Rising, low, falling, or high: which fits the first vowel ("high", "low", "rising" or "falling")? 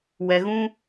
low